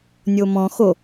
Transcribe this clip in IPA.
nʲ o m ɔ̃ x o

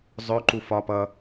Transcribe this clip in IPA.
zˤ œ ǃ u f ɒ p ʌ

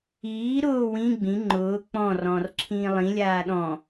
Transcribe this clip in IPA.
iː ɾ ʊː w ĩ ɡ͡b ĩ ŋ͡ǃ ʊː k͡p ɔ̃ r ɔ̃ː r ǁʰ ĩː lˠ ĩ lʲ aː ɗ ɔ̃

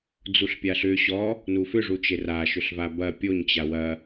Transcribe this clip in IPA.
d͡z u ɬ pʲ a ɬ ʏ ɕ ɔ | n u f ʏ ʐ u t͡ʃ e r a ʃ ʏ ɬ v a b ɐ pʲ o ɲ t͡ɕ a w ɐ

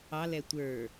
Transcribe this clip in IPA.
ɑ l ɛ tʷ ə˞

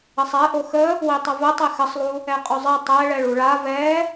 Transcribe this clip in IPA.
ə sˤ ɛ ʔ o x ə | w i tˤ ə v ə tˤ e x ə sˤ lˠ u | ɛ qʼ o zˤ i tˤ ɛ ɭ ɛ ɭ u ɭ a v ɛ

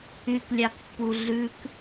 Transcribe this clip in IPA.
y k lʲ ɑ k pː u ɮ ʉ k

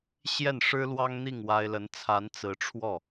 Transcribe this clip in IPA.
ɕ j ɛ˥˩ n ʂ ɻ̩˥ l w ɑ˥ ŋ n̪ i˥˩ ŋ w a˥ ɪ̯ l ə˧˥ n t͡sʰ a˧˥ n t͡s ɹ̩˧˥ ʈ͡ʂʰ w ɔ˥˩

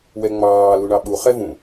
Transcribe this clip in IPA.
w ɛ ŋ͡m ɑː l u ɳ ɑ ɓ u χ ɛ v ũ

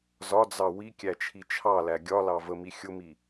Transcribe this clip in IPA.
z ɒ d͡z ɑ w i kʲ æ t͡ʃʰ i t͡ʃʰ ɑ l æ ɡʲ ɒ l ɑ v ə m i xʲ ʊ m i

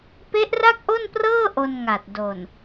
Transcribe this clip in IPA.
p e˦˥ ʔ r a˥˩ k̚ ʔ o˥˩ n p r ɤː˥˩ ʔ o˧ n ŋ a˨˩ t̚ d o˨˩ n

